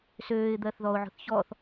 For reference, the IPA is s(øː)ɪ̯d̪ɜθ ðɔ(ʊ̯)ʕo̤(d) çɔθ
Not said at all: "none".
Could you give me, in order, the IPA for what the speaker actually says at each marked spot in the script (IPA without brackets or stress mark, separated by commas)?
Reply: øː, ʊ̯, θ